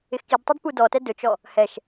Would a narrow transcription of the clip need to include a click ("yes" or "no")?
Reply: no